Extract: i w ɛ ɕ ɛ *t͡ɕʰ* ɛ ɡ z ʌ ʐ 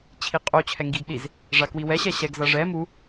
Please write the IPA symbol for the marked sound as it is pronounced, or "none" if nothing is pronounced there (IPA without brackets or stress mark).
ɕ